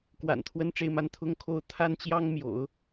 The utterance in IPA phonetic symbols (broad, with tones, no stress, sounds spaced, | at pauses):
k w a̰˨˩ n t̪ʰ w ə˥ n ʈ͡ʂ e˥˧ ɪ̯ m a˥˧ n t̪ʰ ʊ˥˩ ŋ kʰ o˥ ʊ̯ t̪ʰ a˥ n t͡ɕ j ɑ˥ ŋ m j o̰˨˩˦ ʊ̯